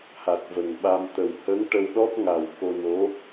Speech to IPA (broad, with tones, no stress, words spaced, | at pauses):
ha˨˩t̚və˨˩ŋɓa˧m t̪ə˨˩whə˧˥ŋ ʈə˧w ɗɔ˦˥p̚ŋa˨˩w ko˧no˧˥